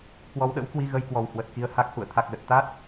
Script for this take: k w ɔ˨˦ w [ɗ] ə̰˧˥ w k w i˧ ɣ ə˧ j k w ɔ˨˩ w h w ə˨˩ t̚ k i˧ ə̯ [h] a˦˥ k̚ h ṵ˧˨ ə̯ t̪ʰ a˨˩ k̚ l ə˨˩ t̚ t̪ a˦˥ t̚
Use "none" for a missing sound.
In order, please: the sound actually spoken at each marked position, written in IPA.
ɗ, h

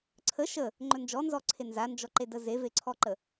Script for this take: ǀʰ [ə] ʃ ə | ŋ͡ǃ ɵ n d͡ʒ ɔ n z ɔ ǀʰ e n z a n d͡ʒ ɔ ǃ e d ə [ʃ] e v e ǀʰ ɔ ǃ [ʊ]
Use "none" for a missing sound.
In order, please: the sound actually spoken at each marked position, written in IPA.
ə, z, ə

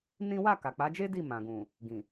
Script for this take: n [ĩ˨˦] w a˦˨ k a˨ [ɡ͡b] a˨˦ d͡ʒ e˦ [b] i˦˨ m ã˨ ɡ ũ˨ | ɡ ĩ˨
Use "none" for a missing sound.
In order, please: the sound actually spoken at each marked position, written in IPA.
ĩ˦, k͡p, d

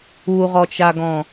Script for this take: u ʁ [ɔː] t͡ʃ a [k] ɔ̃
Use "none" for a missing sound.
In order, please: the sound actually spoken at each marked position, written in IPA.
ɔ, ɡ

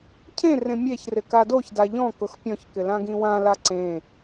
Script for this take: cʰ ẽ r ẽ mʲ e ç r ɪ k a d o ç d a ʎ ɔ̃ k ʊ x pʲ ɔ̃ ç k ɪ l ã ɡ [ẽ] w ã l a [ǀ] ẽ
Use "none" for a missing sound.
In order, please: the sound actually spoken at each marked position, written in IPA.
ĩ, ǀ

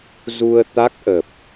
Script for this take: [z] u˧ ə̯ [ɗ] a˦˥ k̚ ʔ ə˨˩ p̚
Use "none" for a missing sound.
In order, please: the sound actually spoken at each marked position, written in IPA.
z, t̪

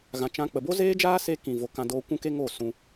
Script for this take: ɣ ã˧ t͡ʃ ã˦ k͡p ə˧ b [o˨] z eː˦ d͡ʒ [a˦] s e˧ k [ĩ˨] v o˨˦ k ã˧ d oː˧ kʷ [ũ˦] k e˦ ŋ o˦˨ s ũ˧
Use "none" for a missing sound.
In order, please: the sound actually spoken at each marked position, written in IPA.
o˦, aː˦, ĩ˨, ũ˦

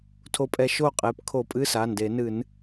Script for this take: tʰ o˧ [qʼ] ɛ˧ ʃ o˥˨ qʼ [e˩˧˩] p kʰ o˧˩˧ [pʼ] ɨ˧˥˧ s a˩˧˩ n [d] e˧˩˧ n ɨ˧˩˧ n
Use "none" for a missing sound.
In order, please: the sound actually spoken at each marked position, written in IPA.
pʼ, e˩˧˩, pʼ, d

